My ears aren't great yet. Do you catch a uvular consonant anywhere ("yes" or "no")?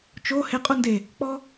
yes